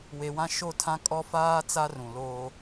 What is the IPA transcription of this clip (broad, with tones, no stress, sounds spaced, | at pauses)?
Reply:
w e˨ w ã˦ ʃ o˦˨ tʰ ã˦ kʼ ɔ˦ f aː˦ t͡s a˦ r ũ˨ l oː˦